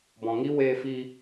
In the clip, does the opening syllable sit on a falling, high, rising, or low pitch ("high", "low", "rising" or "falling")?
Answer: low